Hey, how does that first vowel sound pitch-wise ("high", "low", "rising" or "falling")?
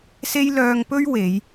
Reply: high